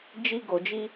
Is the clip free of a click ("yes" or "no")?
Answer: yes